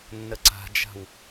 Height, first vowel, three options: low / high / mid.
mid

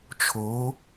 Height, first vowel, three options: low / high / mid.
mid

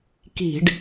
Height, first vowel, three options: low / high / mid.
high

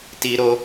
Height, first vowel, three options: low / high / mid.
high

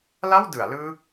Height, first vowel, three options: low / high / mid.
low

